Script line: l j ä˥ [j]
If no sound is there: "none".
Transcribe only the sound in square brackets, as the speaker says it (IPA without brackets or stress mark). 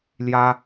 none